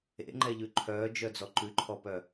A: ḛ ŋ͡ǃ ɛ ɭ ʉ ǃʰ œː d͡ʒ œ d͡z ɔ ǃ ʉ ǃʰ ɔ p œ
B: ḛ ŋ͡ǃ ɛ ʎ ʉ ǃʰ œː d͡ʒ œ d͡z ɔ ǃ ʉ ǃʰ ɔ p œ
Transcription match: B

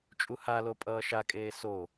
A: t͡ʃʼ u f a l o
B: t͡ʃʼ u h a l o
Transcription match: B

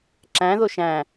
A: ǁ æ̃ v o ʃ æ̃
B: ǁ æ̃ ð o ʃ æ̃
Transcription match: B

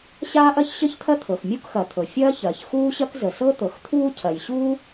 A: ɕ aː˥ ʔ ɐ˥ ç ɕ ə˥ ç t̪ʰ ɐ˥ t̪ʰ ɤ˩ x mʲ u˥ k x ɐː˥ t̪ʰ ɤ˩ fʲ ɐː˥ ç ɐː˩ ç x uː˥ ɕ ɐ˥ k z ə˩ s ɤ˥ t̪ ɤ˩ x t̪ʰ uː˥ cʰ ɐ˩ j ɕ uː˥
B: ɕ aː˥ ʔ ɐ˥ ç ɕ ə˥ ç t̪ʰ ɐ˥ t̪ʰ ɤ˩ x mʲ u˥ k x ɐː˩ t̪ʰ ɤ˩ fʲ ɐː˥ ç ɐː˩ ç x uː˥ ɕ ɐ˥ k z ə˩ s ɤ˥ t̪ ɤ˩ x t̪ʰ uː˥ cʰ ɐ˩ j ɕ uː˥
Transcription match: B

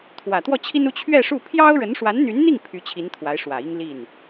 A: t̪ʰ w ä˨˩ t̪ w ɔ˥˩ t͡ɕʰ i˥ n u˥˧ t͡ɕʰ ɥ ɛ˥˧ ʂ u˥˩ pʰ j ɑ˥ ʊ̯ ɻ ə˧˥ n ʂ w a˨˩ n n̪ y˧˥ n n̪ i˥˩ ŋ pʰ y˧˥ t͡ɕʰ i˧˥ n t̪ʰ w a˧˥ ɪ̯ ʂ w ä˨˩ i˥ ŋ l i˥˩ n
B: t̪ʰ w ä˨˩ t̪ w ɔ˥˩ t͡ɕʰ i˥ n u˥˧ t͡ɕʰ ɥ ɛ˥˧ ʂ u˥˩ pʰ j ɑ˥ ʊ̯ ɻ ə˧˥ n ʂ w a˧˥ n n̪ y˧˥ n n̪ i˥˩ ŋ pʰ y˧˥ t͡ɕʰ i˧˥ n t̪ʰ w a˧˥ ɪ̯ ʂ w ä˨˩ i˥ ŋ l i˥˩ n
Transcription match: B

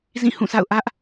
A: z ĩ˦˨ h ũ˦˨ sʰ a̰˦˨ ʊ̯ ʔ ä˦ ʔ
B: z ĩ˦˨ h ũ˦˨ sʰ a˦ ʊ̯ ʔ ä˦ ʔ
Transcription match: A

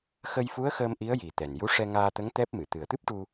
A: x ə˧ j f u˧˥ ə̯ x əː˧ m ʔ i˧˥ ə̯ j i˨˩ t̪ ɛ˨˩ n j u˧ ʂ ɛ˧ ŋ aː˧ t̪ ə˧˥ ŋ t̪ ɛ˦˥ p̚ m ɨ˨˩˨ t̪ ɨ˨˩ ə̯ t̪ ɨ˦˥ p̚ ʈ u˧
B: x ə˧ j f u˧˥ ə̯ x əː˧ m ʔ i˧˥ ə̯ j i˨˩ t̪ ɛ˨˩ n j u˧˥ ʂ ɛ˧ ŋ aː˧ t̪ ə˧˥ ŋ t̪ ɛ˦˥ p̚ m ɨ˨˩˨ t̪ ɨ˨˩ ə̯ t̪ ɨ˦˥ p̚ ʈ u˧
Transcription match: B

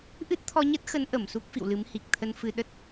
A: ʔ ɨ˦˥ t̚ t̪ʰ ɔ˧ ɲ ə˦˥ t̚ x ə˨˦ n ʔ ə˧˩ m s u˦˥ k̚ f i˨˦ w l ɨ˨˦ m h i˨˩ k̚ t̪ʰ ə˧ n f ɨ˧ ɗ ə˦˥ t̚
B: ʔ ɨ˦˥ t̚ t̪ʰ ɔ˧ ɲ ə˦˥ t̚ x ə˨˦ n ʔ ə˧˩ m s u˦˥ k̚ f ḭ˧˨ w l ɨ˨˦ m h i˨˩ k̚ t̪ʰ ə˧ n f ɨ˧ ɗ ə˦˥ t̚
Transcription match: B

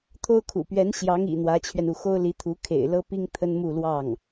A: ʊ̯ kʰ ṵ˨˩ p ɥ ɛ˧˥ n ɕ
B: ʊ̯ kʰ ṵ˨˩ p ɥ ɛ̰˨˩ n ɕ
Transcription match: A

